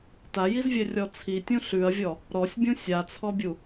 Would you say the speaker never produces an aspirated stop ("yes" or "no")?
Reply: no